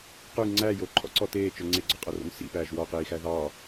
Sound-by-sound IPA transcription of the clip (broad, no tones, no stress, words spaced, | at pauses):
qʉ ŋ͡ǀæ joǃʰɔ̰ǀɔ teːt͡ʃœ ŋ͡ǀeɡ͡ǀɔqʼœro̰n sḭpæːʒ wɔqiːxæ ðɑ